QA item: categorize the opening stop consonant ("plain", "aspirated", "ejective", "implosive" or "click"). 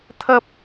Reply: aspirated